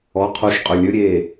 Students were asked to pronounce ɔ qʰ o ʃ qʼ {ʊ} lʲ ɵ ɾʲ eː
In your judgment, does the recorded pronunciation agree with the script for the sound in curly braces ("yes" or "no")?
no